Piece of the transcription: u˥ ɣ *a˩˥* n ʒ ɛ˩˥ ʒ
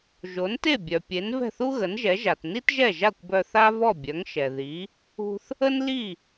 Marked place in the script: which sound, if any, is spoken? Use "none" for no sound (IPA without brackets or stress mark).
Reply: ə˩˥